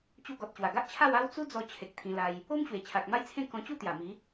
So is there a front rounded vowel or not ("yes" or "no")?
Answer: no